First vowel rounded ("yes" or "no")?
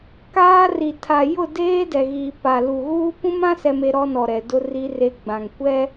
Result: no